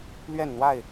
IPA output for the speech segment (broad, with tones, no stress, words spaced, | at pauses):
lɥɛ˥˨nn̪wa˥˨ɪ̯